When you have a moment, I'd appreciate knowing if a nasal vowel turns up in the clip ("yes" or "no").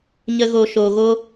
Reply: no